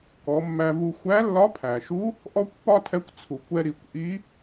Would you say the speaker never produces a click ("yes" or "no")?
yes